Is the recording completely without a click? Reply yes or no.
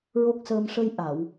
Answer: yes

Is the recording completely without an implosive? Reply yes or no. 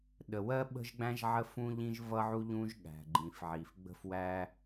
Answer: no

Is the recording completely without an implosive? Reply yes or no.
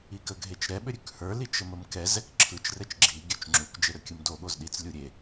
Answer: no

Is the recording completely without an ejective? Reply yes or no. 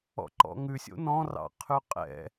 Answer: no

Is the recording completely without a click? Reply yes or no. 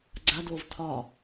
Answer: no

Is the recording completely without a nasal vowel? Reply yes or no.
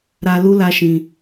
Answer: no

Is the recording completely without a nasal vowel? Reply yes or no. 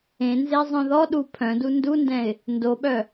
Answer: no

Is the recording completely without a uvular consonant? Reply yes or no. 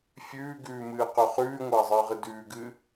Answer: no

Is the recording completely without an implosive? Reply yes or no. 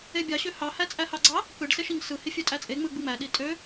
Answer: no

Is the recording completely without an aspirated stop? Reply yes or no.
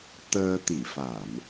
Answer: yes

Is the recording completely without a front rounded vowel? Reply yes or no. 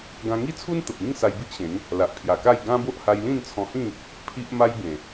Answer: yes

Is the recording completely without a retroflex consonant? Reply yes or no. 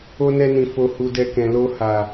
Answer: yes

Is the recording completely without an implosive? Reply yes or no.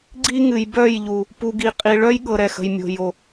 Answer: no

